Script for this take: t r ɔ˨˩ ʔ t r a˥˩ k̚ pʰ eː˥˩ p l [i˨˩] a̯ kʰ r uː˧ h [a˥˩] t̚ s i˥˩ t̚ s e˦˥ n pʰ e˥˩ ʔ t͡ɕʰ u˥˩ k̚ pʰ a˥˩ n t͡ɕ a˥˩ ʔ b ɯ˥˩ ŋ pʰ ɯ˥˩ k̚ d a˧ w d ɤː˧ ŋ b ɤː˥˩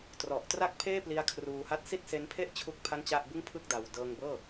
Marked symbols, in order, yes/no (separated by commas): no, yes